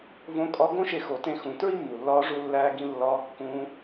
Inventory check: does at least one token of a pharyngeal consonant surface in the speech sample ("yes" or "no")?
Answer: no